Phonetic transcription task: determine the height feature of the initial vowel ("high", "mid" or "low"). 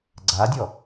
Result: low